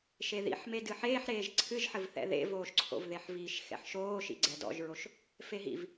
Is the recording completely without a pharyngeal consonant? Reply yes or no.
no